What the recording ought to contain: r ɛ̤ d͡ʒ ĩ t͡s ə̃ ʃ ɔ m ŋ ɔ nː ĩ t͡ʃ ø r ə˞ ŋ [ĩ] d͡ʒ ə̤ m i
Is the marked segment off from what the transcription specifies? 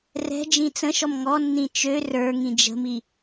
no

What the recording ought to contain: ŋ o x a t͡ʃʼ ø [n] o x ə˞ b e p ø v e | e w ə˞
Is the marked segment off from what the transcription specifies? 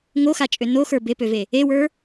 no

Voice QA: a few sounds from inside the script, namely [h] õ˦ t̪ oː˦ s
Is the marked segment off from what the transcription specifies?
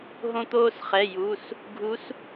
yes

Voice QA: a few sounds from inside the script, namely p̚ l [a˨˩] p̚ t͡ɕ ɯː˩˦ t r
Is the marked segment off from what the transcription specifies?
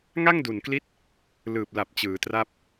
no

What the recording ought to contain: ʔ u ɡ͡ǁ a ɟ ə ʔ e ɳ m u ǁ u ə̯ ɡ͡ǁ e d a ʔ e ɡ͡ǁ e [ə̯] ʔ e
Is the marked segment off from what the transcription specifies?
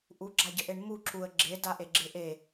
yes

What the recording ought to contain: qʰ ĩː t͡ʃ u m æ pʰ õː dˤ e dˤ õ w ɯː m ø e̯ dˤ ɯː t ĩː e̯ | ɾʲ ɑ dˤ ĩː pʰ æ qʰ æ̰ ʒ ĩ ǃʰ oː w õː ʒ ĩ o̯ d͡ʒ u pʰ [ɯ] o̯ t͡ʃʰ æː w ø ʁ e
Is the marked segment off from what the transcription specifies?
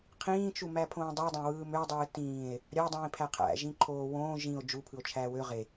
no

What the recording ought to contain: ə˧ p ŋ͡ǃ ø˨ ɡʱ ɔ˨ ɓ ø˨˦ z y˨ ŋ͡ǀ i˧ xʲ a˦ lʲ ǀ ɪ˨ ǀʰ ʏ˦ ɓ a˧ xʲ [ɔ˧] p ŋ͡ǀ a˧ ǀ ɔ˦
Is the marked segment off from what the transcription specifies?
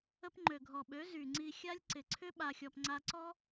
no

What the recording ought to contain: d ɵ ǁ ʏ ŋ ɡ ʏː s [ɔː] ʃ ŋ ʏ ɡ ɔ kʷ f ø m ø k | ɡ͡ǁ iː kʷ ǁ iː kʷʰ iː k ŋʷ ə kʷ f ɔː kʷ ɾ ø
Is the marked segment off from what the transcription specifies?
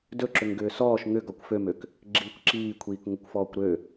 no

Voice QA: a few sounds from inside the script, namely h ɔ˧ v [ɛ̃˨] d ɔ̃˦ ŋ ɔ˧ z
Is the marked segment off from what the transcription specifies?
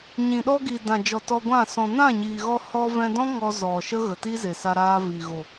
yes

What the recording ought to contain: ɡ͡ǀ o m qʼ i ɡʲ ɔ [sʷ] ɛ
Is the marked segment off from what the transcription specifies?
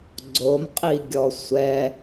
no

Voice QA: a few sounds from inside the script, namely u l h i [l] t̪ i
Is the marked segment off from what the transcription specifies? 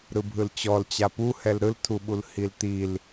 no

